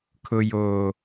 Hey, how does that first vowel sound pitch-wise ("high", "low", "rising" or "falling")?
low